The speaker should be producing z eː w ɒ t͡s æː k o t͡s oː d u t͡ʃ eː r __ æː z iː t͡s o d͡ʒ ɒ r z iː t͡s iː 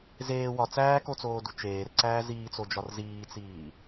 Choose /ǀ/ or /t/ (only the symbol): ǀ